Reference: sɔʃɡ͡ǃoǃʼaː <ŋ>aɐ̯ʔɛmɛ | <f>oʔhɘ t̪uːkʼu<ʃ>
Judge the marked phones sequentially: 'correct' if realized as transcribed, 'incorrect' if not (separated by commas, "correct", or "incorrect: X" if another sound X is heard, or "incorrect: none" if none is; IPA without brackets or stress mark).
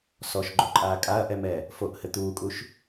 incorrect: kʼ, correct, correct